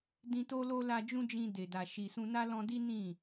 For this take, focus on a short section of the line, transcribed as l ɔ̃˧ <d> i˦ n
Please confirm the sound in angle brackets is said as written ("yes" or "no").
yes